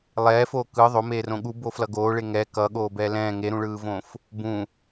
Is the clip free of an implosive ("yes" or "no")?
no